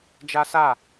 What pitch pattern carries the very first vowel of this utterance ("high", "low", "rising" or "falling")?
high